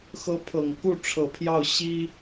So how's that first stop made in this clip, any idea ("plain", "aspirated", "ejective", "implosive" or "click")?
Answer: aspirated